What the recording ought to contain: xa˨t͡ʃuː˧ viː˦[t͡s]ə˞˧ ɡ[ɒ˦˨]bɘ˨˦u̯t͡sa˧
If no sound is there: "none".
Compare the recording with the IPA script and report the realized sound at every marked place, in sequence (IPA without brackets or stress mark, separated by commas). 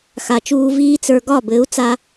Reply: t͡s, ɒ˦˨